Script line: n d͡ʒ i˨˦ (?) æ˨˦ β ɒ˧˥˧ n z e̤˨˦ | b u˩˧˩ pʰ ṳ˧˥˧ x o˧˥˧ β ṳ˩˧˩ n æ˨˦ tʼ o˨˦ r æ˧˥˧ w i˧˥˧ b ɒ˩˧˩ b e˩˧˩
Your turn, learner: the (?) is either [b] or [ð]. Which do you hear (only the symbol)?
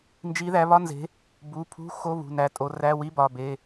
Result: ð